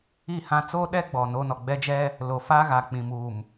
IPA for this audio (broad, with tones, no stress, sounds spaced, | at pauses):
i˦˨ h ã˦ t͡s oː˦ ɗ ɛ˦ ɡ͡b ɔ˨ n o˦ n ɔ˨ ɡ͡b ɛ˦ d͡ʒ ɛ˦ | l o˨ f aː˦ ɣ a˨ k͡p ĩ˨ m uː˨ m